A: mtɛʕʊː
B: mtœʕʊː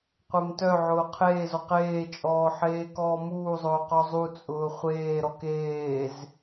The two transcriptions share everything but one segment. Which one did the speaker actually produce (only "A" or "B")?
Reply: B